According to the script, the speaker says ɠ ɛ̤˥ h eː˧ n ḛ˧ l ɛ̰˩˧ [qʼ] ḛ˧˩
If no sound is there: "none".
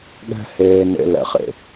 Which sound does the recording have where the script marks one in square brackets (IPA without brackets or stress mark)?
χ